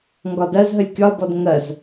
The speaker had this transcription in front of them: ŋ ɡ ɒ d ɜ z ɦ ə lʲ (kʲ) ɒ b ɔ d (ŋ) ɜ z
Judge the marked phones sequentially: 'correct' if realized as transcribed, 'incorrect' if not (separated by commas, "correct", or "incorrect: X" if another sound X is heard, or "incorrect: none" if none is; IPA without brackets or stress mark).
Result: correct, correct